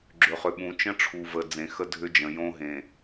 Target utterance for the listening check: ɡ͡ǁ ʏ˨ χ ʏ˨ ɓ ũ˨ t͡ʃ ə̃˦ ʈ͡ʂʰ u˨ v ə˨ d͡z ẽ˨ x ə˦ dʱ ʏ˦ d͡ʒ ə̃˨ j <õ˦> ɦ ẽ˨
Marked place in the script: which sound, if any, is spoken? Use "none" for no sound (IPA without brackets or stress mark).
õ˦